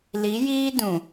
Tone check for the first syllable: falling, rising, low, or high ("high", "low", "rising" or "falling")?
rising